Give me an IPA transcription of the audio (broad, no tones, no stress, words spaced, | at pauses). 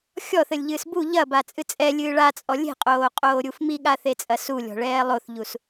xʲɔθɘlʲʎɨːs bu ʎɐbat͡sʼɨ t͡sʼɛlʲɨː ɭat͡sʼɔ lʲe̤qʼoːqʼoːɾʲuf miɠaθet͡sʼɐ sulʲɔ̤ɭɛː lˠoθʎus